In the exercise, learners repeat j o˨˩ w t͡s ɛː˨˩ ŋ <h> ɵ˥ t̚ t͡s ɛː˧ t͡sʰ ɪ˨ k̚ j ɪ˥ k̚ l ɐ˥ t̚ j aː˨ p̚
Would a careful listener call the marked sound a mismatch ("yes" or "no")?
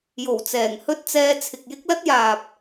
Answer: no